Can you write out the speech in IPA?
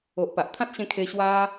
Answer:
o˨ʔpa˨ʔ t̪ʰã˦t̚ɕẽ˧ kʰe˧ ɕwa˧

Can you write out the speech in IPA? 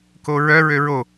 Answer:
koɹœ ɹøɹo

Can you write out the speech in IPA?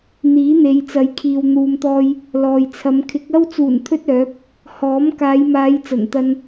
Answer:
n̪iː˨˥n̪e˨˧jt͡sɐ˨˧jkʰiː˨w n̪uː˨mt̪ɔː˧j | lɔː˨jt͡sʰɐ˨˧m kʰɪ˨˥k̚ɐ˥w t͡suː˨˩nt̪ʰɵ˧t̚ œː˨˥p̚ | hɔː˨˥m kaː˨˧jmaː˨˧j t͡sɐ˨˩nt̪ɐ˧n

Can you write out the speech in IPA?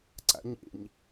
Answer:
ǀa̰ɲḛɲ

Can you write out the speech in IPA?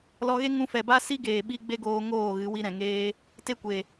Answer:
lɔ˧ɣe˦ ŋũ˧fɛ˨ba˦ si˦ɡeː˨ɓi˧ ɡ͡be˦ɡoː˧ ŋoː˦˨ɣɨ˨˦ wi˧ɾɛ̃˨ŋeː˧ | te˦kʷe˨

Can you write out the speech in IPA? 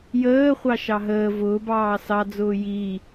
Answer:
jəːχʷɑ ʃɑɦəː vʊː bɑːsɑd͡zʊː jiː

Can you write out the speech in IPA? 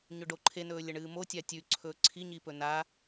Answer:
ɲɵɖoǃʰenɵː lʲɐɳɨːmo tʲatʲʉǀʰɵː ǀʰi ɲipɵna

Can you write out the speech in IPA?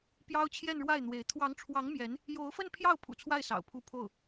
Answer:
pjɑ˥ʊ̯t͡ɕʰjɛ˥˧nɻwa˥˩ɪ̯n̪we˧˥ɪ̯ t̪ʰwɑ˧˥ŋʈ͡ʂʰwɑ˧˥ŋ mjɛ˧˥n | jo˧˥ʊ̯fə˥˧npʰjɑ˥˩ʊ̯ pʰṵ˨˩t͡sʰwa˥˩ɪ̯ sɑ̰˨˩ʊ̯pʰu˥˧ pʰo˥˩ʊ̯

